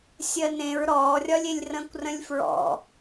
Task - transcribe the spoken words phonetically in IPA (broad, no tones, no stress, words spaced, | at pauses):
sʲɜnẽɹ ɾɔːrʲɒlʲelʲ rə̃ːkʷrə̃lʲfɹɔ̰